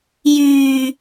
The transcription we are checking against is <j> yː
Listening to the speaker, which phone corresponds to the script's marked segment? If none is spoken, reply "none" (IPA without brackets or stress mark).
j